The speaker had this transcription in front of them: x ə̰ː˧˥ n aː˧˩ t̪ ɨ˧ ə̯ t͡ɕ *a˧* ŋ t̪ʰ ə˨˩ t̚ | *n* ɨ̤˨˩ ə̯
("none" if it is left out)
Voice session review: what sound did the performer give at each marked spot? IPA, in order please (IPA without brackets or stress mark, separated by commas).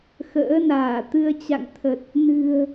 a̰˧˨, n